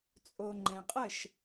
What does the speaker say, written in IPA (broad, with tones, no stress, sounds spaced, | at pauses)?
t͡sʼ o˨ ŋ͡ǃ ɛ̃˨ qʼ ə˦˨ ʃ